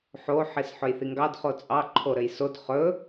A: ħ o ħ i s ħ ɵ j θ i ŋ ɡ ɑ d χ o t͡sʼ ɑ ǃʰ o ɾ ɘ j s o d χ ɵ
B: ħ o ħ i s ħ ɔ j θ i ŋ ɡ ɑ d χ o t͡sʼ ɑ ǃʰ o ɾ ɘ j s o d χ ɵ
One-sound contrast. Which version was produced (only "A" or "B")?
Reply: A